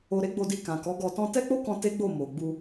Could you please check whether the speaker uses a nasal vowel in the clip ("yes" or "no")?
yes